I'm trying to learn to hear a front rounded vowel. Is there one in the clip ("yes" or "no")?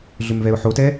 yes